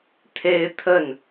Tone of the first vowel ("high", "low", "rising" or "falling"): high